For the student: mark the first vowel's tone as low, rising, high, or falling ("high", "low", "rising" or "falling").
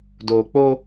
low